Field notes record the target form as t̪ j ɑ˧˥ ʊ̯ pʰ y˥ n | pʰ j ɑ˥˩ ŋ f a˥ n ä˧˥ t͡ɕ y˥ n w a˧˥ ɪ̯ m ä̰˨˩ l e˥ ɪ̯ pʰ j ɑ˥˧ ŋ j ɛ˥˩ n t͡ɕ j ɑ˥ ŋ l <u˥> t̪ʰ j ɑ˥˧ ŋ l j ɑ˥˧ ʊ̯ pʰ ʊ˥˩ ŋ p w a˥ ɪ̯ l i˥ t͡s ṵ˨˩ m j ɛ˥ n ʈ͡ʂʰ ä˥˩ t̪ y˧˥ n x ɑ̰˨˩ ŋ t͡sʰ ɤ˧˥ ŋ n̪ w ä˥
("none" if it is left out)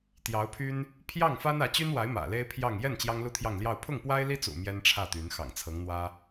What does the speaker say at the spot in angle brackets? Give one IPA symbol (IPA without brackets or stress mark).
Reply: u˥